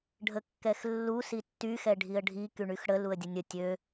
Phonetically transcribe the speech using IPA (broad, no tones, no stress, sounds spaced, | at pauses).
ɖʱ ə kː ɛ x lː u s i tː y x ɛ ɖʱ i ə̯ ɖʱ i k y ɳ y x ɽ ə l u ə̯ dʲ ə nʲ ə tʲ ø